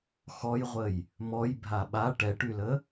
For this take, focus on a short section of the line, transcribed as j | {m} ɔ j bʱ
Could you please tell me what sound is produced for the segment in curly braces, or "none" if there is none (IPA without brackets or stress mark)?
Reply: m